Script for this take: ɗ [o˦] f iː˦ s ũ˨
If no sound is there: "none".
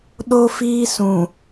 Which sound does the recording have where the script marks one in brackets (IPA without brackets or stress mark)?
o˦